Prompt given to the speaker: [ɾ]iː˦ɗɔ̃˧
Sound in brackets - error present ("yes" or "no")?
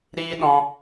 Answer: no